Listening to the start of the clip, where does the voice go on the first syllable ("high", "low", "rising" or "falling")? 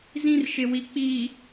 high